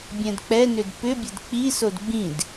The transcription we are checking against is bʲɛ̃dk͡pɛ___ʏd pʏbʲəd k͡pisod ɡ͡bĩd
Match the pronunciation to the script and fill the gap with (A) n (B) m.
A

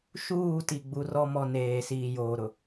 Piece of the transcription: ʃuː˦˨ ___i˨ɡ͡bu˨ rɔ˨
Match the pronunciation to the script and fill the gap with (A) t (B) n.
A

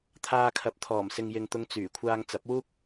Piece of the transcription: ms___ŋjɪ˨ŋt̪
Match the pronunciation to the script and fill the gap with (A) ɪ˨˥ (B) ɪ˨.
B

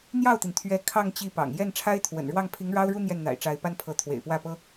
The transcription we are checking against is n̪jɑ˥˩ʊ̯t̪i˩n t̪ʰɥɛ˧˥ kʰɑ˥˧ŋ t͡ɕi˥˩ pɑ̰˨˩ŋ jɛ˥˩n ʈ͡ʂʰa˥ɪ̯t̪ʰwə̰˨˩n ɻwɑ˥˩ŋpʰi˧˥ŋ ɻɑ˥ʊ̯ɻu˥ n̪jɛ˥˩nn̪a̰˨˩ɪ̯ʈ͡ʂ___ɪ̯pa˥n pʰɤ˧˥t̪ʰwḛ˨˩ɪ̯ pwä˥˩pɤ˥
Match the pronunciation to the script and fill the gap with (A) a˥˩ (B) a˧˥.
B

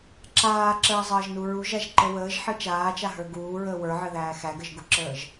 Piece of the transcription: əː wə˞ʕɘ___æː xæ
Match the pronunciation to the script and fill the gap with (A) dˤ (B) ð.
B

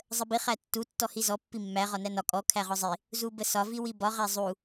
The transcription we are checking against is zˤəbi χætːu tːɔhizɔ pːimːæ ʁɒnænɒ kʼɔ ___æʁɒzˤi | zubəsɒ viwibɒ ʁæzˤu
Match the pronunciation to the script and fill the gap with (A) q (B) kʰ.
B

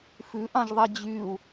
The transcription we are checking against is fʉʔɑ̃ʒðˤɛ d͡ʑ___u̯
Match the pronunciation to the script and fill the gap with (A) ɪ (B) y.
B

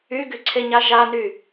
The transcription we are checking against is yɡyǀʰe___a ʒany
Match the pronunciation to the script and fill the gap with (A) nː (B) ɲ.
B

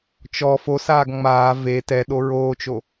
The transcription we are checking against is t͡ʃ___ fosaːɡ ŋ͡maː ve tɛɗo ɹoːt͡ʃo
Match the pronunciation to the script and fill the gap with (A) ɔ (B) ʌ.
A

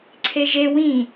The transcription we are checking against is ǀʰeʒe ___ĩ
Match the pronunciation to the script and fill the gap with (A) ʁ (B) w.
B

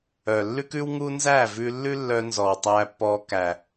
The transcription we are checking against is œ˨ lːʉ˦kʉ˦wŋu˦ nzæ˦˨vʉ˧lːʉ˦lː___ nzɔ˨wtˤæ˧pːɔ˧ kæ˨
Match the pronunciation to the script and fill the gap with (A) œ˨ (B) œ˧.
B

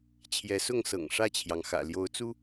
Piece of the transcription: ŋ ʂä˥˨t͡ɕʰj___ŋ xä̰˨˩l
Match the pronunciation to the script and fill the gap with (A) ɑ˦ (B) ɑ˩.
B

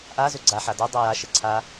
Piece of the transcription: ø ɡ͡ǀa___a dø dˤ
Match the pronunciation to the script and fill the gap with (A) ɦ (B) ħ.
B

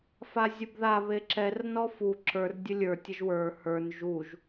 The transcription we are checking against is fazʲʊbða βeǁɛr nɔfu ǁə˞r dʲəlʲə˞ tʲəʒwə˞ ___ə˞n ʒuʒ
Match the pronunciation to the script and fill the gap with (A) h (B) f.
A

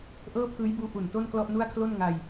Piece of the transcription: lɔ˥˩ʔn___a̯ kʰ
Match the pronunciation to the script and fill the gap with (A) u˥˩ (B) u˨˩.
A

